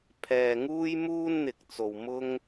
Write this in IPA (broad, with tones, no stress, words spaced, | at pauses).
pʰɛː˨ ŋuː˥jmuː˥nn̪ɪ˨k̚t͡so˨w mʊ˥ŋ